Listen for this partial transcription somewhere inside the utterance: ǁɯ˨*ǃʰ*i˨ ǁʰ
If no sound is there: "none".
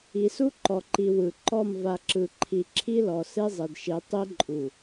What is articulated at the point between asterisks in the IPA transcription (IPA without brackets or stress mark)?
ǃʰ